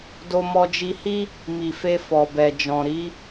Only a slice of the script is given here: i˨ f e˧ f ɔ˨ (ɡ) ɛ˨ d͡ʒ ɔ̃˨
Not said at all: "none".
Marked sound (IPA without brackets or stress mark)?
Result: b